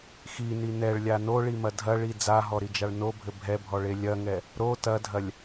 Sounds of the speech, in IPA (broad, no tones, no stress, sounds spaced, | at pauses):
x i n i n ɛ ɭ lʲ a n o ɭ i m ɐ dʱ ɐ ɭ i d͡z a ɦ ɔ ɾ i d͡ʒ a ɭ n o bʱ ɘ bʱ ɛ bʱ ɔ ɭ e lʲ ɐ ŋ ɛ | ɾ o t ɐ dʱ ɐ lʲ